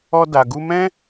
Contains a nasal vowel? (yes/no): yes